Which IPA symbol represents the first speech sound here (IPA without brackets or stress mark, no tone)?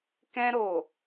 k